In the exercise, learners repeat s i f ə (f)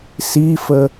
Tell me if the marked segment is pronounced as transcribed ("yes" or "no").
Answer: no